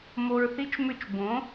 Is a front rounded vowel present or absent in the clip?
present